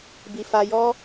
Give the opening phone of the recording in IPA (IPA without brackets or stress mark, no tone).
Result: b